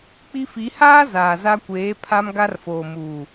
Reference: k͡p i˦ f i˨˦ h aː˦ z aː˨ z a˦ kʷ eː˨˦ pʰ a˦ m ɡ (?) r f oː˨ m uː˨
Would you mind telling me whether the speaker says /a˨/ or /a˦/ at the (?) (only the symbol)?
a˦